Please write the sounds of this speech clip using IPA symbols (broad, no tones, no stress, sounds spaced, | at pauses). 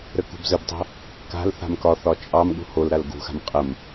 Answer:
ɾ ə k ṳ b z ə b tˤ o̤ | k a̤ l θ a̤ m k ɒ θ ɒ t͡ʃʼ ɑ m ɠ ṳ h o l ɾ a l ɡ ṳ x a̤ m qʼ ə m